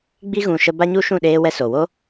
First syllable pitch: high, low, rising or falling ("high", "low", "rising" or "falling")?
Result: high